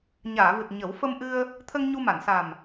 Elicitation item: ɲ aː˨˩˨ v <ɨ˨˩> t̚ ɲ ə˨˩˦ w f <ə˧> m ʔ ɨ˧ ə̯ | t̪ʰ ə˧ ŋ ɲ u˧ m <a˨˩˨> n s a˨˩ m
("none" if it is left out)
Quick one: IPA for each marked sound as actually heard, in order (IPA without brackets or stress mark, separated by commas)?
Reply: ɨ˨˩, ə˧, a˨˩˨